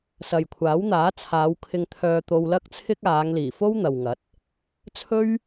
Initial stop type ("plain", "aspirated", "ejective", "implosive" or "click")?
aspirated